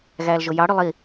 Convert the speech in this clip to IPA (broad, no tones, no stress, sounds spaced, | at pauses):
ɣ æː l ʒ o j ɑ ɽ y lˠ i